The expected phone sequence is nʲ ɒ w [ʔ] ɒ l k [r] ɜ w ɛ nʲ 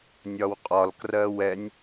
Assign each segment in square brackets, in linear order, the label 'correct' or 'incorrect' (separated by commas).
incorrect, correct